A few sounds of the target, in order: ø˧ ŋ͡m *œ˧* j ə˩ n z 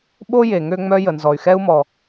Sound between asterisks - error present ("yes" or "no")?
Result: no